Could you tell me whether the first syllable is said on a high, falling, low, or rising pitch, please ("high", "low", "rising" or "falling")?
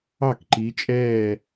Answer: falling